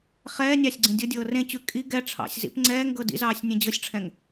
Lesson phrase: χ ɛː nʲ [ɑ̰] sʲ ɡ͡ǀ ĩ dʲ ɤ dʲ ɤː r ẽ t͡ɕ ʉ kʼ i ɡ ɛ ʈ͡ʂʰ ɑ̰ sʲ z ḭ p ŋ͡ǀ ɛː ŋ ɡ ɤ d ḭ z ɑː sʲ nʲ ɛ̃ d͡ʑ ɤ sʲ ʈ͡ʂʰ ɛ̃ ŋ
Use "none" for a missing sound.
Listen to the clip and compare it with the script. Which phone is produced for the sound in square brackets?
ɑ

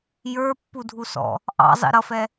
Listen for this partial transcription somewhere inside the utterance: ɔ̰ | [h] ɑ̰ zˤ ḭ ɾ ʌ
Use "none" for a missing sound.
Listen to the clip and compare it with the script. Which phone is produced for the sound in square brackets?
ʔ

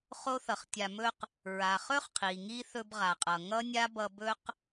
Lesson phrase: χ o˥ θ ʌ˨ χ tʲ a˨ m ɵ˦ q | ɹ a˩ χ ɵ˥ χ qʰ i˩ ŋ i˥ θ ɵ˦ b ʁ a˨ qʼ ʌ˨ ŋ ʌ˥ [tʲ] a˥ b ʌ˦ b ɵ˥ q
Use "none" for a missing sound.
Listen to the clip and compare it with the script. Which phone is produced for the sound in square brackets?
nʲ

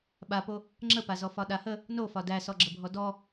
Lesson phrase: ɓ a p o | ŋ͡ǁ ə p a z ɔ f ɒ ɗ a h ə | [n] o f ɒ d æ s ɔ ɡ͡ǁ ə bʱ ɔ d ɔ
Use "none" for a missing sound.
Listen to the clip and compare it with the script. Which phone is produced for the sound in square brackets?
n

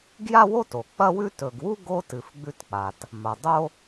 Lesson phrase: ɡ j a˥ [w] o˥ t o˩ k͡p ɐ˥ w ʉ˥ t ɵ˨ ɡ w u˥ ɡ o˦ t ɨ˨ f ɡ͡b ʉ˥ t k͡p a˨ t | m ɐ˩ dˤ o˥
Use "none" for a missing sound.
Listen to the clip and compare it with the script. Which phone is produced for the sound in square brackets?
w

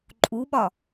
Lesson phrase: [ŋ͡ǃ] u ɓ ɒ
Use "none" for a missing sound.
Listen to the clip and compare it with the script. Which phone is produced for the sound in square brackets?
ǃʼ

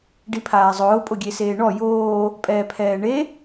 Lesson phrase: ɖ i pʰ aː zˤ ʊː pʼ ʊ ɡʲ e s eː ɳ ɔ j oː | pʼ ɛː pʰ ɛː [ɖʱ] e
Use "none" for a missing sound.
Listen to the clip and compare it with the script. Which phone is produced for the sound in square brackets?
ɳ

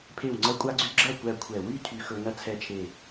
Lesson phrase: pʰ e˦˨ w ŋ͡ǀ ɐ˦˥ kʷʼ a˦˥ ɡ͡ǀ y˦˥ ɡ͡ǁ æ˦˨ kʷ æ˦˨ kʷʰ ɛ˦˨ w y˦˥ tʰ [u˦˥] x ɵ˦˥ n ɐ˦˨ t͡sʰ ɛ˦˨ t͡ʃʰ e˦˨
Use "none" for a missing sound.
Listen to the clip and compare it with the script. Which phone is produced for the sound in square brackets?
y˦˥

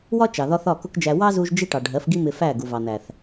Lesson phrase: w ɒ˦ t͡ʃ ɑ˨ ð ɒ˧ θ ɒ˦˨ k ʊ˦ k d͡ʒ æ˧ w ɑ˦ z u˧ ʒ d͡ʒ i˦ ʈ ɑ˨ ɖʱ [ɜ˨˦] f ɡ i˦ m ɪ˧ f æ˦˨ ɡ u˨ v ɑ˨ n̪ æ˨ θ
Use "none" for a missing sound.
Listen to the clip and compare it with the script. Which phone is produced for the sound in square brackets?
ɜ˨˦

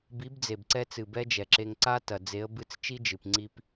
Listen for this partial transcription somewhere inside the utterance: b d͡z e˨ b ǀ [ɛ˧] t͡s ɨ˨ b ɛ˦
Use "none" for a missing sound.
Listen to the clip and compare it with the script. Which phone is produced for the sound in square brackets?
ɛ˧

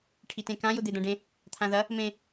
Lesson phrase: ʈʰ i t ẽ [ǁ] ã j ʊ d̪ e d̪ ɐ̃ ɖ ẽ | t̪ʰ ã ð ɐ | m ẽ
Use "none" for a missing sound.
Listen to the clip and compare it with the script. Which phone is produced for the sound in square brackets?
k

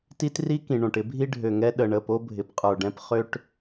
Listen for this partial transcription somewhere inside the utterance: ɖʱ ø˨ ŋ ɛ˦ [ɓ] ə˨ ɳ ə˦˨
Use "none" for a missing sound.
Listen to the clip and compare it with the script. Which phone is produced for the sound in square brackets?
ɗ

